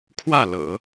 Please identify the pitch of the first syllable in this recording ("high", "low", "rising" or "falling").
falling